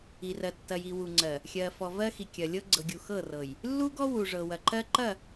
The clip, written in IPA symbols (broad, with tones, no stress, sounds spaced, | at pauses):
i˨ r ɜ˨ tː ɐ˨ j i˨ w u˨ ŋ͡ǀ ɜ˨ | xʲ ɜ˨ f ɔ˨ v ɜ˦ x i˨ kʲ ɐ˨ lʲ ɤ˦ ɡ͡ǀ ɤ˨ ɡʲ u˨ x ɤ˦˨ r ɤ˨ j | lː u˦ ɡ ɔ˦ w u˨ ʐ ɤ˨ w ɐ˨ ǃ ɜ˦ ǃ ɐ˦˨